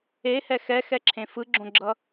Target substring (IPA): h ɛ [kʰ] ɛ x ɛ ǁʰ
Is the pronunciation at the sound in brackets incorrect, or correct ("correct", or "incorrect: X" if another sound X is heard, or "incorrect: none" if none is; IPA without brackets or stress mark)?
incorrect: x